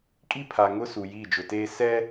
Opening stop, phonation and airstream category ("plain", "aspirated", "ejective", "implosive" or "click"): ejective